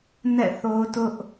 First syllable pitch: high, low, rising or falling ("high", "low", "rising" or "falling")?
falling